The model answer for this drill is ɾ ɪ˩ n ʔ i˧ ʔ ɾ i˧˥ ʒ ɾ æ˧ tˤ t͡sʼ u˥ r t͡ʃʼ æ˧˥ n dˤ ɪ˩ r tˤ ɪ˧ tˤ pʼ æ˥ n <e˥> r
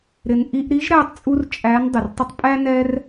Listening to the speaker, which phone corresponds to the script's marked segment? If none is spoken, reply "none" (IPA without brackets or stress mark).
ɛ˥